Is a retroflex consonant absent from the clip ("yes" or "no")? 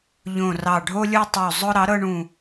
no